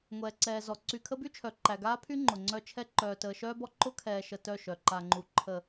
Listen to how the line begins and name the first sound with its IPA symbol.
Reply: ŋʷ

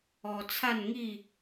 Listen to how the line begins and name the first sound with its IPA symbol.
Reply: ɔ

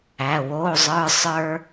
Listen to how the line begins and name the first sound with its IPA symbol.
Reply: æ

